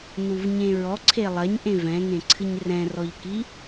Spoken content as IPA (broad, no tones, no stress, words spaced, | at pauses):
nuvɲẽɹɔǀʰe lˠɐɲʔẽv ɛ̃ŋẽǀʰɨɲ rɛ̃rɔʎki